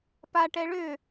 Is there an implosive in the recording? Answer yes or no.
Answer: no